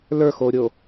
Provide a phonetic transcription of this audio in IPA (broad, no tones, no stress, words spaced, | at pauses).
lə˞xoːɾʲo